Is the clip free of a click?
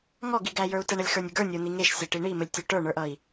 yes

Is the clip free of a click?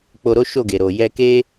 yes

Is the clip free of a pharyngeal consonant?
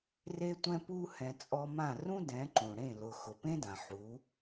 no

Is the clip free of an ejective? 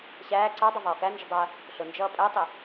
no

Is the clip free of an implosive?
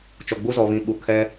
no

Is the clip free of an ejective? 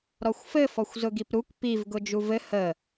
yes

